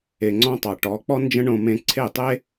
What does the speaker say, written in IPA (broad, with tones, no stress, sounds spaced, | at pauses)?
e˨ ŋ͡ǀ ɔ̃˧ tˤ ɑ˨ ʈ ɔ˨˦ k͡p ɔ˦ n d͡ʒ ə̃˦ ɳ õ˧ m ẽ˧ ǀʰ e˦˨ tˤ e˦